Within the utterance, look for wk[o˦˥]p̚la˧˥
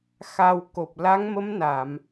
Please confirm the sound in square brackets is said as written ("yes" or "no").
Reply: no